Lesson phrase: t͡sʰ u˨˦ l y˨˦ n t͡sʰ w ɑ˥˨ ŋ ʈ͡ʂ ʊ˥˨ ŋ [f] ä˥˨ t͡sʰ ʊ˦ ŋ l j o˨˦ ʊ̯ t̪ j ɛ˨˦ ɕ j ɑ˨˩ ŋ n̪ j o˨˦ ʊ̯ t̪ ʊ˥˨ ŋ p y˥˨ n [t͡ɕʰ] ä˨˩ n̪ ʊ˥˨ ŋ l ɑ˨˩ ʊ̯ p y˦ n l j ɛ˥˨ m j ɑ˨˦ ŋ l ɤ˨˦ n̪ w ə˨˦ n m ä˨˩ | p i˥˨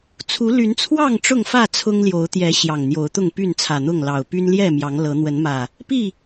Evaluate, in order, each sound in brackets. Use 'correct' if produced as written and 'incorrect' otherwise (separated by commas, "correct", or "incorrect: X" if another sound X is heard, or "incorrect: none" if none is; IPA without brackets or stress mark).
correct, incorrect: t͡sʰ